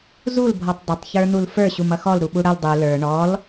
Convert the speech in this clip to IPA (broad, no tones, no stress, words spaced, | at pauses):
zulbʱɔtˤ dˤɪtˤçə˞n̪ul fə˞ ɕumʌxɔl ɾuɓuɽʌl dˤu lə˞ ɳɔl